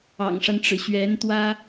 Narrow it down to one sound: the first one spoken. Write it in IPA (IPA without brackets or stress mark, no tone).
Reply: ɑ̰